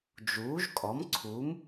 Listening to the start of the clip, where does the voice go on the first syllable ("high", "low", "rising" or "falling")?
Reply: rising